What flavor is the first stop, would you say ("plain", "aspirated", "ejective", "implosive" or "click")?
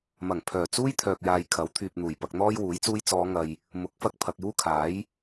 aspirated